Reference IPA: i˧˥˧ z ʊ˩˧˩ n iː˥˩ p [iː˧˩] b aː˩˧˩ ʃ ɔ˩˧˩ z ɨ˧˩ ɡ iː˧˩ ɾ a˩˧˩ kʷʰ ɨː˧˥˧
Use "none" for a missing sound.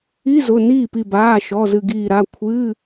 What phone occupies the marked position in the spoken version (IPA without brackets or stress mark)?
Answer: i˧˩